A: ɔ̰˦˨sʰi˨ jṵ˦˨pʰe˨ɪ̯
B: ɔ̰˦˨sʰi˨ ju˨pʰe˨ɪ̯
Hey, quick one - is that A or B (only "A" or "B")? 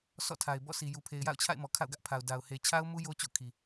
B